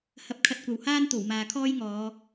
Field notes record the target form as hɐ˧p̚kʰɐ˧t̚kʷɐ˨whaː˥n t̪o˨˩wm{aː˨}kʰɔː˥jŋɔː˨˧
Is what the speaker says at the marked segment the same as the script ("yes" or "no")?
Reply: yes